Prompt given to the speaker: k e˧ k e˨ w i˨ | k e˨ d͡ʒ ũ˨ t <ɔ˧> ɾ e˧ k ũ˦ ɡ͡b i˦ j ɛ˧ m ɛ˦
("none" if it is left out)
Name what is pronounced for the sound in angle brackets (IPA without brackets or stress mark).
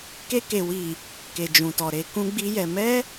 ɔ˨